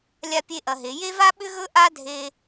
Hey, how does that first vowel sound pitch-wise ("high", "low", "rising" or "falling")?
high